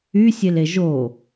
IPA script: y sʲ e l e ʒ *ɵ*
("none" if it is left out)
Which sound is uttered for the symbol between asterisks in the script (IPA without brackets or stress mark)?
o